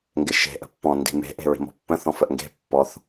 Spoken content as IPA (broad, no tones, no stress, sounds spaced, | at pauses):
ŋ ɡ ɪ ʃ e̤ ʔ ə̤ pː ɔ̃ n d i̤ m e̤ ʔ e̤ ɹ i̤ m ɔ̤ pː ə̃ θ ɔ̃ f ə ʔ ŋ ɡ e̤ pː ɔ θ